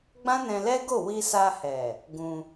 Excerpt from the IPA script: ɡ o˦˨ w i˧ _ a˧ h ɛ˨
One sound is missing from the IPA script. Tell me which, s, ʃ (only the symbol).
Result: s